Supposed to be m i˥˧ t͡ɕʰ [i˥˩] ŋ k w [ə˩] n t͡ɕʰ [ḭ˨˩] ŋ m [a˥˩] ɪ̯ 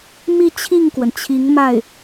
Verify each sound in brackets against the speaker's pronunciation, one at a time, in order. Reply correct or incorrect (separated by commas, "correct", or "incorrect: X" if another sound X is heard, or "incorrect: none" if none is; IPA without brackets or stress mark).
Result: correct, correct, incorrect: i˧˥, correct